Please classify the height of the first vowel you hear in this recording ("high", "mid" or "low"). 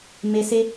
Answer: mid